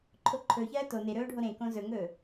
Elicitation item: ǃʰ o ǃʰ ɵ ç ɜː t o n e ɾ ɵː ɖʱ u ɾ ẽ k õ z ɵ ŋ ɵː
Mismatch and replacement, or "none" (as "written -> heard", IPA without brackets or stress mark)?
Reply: u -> o